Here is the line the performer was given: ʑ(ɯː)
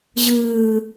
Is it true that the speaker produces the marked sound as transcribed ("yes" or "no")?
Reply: yes